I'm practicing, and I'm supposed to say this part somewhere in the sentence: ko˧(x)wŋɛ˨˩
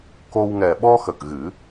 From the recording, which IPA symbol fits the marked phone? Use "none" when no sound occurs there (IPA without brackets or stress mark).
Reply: none